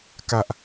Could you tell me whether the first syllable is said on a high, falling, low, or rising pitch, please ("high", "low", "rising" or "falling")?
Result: low